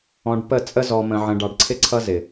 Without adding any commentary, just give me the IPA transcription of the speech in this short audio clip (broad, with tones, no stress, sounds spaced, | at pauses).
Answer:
ɔ̃˨ ɖ p ə˦˨ t͡sʼ ə˦ z ɔ˨ m ə̃˨ ʕ ə̃˨ ɖ ɑ˨ ɖ ǀʰ ɪ˦ ǀʰ ʌ˦ z ɪ˨